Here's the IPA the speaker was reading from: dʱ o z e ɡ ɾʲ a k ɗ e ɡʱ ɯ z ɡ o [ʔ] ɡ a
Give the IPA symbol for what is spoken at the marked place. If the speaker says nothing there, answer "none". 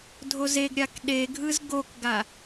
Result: k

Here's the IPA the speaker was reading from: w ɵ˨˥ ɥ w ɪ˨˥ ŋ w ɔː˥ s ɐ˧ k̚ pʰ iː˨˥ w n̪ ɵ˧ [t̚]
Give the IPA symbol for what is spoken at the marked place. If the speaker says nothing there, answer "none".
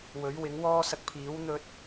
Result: t̚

